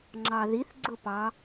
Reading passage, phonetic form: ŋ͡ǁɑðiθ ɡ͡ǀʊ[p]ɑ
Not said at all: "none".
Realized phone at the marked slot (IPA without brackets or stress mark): p